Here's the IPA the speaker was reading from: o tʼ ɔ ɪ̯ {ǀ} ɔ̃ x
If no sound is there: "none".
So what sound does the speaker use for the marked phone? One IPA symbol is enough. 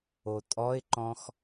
ǃ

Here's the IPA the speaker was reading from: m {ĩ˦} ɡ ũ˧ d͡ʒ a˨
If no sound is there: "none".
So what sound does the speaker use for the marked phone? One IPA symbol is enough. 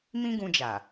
ĩ˦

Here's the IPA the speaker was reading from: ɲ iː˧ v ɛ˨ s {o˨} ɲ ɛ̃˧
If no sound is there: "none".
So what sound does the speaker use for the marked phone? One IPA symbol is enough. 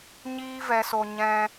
o˨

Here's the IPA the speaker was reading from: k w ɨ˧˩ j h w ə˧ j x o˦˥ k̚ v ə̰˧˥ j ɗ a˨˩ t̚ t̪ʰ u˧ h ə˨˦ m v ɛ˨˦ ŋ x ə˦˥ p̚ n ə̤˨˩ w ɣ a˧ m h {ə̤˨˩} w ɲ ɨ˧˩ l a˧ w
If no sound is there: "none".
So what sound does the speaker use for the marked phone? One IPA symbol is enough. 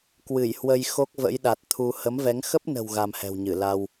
ɛ̤˨˩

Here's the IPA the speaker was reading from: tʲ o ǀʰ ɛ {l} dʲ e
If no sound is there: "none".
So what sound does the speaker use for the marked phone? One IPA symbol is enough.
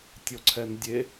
n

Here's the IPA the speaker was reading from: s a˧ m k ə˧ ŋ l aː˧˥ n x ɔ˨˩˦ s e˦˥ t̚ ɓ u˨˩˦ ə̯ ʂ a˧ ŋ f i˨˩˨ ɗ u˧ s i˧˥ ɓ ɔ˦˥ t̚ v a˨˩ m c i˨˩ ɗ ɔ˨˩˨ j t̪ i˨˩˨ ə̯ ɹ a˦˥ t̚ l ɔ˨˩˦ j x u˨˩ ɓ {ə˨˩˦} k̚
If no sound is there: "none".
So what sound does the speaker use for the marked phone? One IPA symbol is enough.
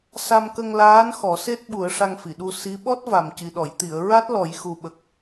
ə˨˩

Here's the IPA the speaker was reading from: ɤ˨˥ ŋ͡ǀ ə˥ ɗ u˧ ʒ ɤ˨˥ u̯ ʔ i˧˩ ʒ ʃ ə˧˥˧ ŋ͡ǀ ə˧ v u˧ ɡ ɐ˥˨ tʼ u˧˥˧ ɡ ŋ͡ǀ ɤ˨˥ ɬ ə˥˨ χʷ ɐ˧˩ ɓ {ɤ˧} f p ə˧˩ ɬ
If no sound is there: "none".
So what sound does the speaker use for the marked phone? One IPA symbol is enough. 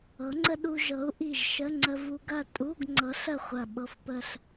ɤ˧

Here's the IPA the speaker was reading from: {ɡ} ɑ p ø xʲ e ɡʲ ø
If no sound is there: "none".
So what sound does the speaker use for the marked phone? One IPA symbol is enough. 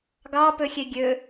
ɡ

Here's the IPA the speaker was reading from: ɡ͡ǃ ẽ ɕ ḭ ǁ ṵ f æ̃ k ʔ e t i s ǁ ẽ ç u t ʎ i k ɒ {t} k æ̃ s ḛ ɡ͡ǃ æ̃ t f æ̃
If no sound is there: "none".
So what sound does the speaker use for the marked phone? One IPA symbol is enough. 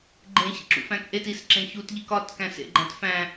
t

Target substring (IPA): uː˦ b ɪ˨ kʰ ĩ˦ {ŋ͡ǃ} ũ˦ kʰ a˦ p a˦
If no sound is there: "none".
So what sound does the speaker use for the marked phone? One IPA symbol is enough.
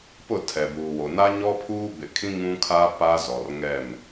ŋ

